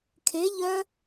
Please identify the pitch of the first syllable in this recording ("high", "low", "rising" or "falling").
rising